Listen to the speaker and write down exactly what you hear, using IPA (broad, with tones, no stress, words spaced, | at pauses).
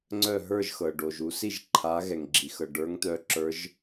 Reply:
ŋ͡ǀœ˥˨ ɦə˞˥˨ʒxɤ˩ ɖo˩ʒ u˨˦si˥˨ʒ ǃʰa˨˦ ɣɛ˩ŋɡ͡ǁi˩ xɤ˩ɖə˞˨˦ŋt̪œ˨˦ ǁə˞˨˦ʒ